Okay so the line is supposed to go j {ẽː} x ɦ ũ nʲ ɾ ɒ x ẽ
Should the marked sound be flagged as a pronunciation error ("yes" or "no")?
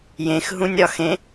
yes